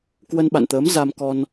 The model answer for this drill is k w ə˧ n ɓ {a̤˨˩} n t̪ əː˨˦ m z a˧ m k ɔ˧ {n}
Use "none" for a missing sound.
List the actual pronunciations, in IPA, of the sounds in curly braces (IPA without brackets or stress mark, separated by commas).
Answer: a̰˧˨, n